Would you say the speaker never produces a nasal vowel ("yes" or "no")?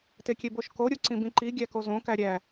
no